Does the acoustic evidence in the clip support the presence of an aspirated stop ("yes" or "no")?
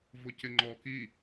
no